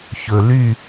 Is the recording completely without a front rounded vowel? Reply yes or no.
no